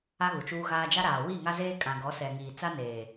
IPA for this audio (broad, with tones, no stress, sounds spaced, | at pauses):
a˦ ɣ u˨ t͡ʃ uː˦ ɣ aː˦ d͡ʒ a˦ ɾ aː˨ w i˦˨ ŋ a˦ z eː˦ kʼ ã˨ ɡ ɔ˨˦ s ɛ˨ ŋ iː˨ t͡s a˦ n eː˨